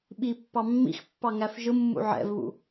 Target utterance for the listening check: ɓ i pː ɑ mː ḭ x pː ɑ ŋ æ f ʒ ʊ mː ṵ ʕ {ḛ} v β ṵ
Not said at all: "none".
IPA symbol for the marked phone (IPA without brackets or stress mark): ɛ̰